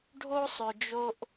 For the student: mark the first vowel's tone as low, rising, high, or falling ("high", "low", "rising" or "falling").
high